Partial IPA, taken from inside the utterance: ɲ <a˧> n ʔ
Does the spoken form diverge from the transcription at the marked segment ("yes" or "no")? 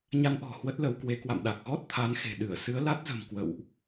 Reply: no